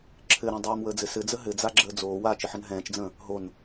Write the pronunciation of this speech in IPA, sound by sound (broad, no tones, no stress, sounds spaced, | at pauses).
ǁʰ ɘ ɾ ɛ̃ dˤ oː m w əː d͡z ɘ s ɘ d͡z ə ɦ ɘ d͡z a ɡ͡ǁ əː d͡z oː w aː t͡ʃ ə ħ ə n ɦ ɛ̃ː t͡ʃ d͡z ə̃ː | ɦ o n